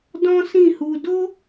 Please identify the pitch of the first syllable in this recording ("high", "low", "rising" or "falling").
high